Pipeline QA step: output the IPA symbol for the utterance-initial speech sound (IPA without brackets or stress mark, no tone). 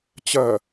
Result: t͡ɕ